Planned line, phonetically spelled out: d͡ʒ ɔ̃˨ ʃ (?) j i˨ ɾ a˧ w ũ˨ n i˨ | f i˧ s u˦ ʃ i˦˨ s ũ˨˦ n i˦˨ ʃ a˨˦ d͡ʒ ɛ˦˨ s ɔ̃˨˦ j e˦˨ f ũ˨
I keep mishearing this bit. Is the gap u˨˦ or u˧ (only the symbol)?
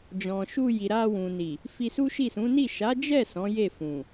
u˧